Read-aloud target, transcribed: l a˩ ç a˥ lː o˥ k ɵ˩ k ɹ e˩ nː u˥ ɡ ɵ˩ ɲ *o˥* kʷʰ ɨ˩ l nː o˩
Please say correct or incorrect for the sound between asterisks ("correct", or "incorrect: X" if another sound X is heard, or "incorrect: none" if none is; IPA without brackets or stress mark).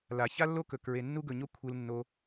correct